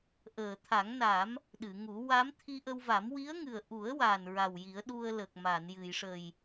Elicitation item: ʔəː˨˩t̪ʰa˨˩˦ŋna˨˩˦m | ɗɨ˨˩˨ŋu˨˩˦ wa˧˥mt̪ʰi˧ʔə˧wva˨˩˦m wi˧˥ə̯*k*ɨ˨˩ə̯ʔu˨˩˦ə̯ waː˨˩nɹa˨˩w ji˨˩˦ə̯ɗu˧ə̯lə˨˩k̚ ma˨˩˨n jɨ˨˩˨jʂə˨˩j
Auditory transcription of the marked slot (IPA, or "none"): ŋ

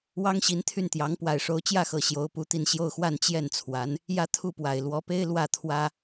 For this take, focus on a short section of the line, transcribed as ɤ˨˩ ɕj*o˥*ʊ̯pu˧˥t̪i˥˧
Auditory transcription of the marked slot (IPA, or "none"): o˧˥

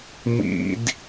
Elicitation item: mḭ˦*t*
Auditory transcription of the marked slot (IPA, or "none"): d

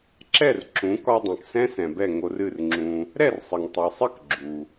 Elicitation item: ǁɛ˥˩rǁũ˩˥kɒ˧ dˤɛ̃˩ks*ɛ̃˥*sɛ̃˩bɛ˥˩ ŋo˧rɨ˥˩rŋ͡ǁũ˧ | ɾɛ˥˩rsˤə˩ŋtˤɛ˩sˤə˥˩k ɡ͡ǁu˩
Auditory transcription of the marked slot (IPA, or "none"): ɛ̃˥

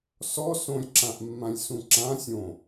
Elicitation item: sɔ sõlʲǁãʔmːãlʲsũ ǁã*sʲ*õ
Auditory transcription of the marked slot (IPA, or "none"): sʲ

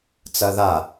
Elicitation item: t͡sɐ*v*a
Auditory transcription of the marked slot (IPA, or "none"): ð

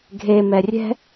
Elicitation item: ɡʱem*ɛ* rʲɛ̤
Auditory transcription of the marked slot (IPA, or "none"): ɛ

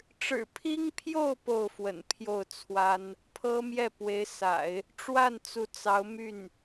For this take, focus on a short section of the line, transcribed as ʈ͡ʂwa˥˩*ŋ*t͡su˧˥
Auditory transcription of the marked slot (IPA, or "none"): n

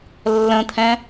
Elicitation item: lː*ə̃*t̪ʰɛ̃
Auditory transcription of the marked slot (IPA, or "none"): ə̃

